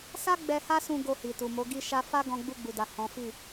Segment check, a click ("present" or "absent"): absent